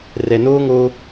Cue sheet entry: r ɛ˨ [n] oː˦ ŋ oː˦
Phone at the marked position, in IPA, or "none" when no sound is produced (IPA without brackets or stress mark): n